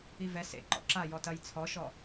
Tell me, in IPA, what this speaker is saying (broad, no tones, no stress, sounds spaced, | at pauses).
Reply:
i v ɛ s ḛ ǃ ɔ̰ ǁ a j ɔ t ɐ j t͡sʰ ɔ ʃ ɔ